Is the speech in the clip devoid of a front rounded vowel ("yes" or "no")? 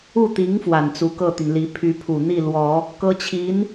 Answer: no